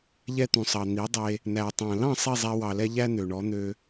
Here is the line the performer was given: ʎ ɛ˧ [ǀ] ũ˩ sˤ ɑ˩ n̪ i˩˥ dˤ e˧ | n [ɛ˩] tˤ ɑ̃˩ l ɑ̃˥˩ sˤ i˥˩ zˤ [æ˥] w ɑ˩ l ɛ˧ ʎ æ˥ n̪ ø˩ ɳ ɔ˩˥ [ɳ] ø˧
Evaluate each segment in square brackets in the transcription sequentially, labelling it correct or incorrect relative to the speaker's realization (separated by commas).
incorrect, incorrect, incorrect, incorrect